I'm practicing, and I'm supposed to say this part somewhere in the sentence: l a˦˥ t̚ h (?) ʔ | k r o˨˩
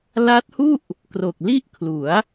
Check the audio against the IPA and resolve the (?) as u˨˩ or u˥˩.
u˥˩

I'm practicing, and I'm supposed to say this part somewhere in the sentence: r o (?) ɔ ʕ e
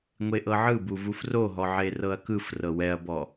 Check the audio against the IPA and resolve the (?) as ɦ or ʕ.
ɦ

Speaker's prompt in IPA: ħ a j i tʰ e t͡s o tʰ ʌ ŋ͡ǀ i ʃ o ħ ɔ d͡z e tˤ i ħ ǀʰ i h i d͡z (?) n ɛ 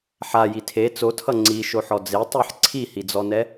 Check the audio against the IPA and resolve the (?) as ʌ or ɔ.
ɔ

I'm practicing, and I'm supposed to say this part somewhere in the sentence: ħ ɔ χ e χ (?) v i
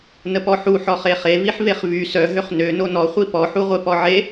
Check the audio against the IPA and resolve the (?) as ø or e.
e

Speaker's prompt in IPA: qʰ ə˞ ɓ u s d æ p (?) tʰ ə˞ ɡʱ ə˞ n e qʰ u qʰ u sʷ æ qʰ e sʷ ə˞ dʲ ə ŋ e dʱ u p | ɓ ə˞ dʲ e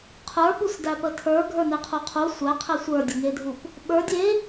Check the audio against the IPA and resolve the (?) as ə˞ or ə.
ə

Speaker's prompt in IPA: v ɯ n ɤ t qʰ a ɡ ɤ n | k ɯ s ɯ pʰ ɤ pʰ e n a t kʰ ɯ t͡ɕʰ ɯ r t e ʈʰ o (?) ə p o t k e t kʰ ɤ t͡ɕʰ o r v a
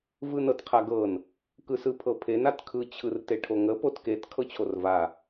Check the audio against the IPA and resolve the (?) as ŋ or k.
ŋ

